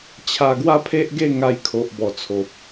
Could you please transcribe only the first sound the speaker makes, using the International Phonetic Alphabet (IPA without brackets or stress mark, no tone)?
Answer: t͡ɕʰ